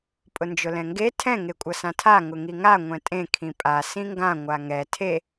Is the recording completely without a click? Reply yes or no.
yes